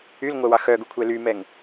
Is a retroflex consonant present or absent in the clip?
absent